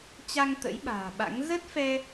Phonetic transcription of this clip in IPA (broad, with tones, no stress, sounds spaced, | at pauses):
t͡ɕ a˧ ŋ t̪ ə̰˧˥ j ɓ a̤ː˨˩ ɓ a̰˧˥ ŋ z ə˦˥ t̚ f ɛ˧